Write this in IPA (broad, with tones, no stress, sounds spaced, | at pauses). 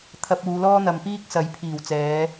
t̪ʰ ɐ˧ p̚ uː˨˧ l ɔː˥ n̪ ɐ˨ m p iː˥ k̚ s ɐ˨˥ j pʰ iː˨˩ w t͡s ɛː˨˧